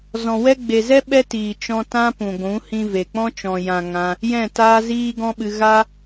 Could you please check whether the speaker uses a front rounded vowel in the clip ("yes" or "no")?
no